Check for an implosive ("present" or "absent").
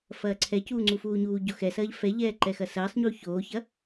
absent